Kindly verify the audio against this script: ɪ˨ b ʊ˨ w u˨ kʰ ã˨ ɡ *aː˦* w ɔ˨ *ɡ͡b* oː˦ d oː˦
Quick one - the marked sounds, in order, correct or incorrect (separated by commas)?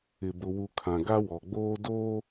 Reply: incorrect, correct